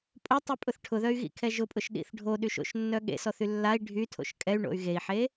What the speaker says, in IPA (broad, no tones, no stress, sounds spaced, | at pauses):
pʼ o tˤ y pʼ ʊ θ ʈʰ ʊ ð œ y̯ ɣ ḭ kʰ ɛ ʒ ʊ pʼ ʊ ʃ ɗ ḭ θ ɖʱ o ɗ y ʃ o̰ ʃ nː œ ɠ ḛ s ɔ θ y lː a i̯ ɖʱ y tʰ o̰ ʃ kʼ ɛ y̯ ɳ o̰ y̯ ɣ e i̯ ħ e